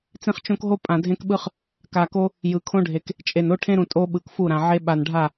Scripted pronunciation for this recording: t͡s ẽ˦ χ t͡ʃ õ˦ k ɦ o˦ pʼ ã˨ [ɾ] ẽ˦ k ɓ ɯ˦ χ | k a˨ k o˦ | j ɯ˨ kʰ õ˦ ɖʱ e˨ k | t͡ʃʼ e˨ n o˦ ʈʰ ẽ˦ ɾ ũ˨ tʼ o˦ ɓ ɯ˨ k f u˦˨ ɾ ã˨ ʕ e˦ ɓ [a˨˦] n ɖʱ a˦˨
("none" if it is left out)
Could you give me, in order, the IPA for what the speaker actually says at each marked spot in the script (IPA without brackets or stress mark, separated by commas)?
dʱ, a˨